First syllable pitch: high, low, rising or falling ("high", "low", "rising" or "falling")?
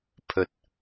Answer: low